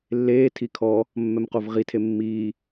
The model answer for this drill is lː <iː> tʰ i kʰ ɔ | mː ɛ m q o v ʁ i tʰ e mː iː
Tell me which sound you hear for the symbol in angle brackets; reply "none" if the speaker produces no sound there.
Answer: eː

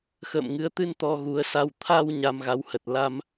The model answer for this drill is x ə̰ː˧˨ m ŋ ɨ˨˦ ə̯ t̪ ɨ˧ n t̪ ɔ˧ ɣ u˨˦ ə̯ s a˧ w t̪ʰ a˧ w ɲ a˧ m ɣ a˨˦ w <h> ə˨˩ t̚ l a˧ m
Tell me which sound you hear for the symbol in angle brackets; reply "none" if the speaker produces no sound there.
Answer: h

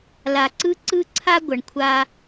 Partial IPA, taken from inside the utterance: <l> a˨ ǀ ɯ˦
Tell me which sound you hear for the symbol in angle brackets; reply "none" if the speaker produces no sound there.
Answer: l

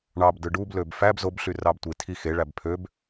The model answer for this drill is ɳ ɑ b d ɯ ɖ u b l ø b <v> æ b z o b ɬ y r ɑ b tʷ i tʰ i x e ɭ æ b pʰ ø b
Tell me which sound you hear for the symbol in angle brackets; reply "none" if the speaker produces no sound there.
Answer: f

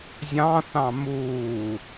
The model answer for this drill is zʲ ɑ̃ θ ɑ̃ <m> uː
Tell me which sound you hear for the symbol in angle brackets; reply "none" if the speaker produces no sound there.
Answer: m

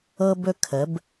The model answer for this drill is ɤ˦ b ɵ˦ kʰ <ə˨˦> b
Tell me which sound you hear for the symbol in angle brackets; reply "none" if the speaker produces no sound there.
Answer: ə˨˦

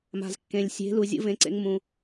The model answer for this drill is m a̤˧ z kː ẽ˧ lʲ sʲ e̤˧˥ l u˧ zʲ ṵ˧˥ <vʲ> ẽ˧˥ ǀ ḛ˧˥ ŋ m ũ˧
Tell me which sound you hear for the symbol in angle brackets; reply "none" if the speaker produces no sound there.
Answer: v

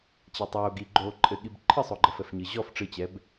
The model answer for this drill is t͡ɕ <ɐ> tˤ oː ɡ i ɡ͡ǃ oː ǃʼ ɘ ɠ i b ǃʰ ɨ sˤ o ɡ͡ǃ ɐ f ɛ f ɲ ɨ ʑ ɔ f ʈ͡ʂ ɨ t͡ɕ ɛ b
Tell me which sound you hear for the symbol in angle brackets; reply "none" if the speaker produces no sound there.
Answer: a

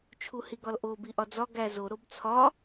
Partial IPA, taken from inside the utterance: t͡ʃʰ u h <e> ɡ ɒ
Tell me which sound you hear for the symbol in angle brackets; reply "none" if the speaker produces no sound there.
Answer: i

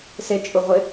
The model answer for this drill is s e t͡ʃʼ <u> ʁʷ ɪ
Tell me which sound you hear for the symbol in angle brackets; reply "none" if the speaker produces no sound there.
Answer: u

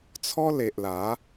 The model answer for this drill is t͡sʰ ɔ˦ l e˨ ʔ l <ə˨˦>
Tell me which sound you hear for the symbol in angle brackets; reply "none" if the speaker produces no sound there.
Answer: a˨˦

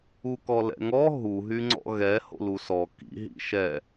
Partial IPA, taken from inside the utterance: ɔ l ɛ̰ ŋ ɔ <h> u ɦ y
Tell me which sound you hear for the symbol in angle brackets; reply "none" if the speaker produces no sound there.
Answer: ɦ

